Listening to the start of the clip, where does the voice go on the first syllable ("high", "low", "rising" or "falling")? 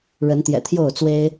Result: rising